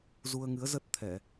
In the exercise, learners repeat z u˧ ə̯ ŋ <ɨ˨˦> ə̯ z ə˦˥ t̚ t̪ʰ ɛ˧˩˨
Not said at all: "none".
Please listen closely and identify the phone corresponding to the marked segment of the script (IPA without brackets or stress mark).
ɨ˨˦